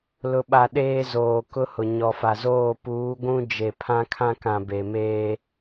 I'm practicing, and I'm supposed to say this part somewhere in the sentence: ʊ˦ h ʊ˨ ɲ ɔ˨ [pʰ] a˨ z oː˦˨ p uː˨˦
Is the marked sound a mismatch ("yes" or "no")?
yes